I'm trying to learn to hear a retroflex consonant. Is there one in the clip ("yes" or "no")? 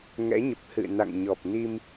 no